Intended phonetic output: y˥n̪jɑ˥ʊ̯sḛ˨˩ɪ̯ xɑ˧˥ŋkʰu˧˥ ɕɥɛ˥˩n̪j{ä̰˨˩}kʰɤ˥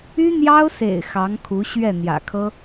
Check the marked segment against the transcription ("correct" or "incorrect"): correct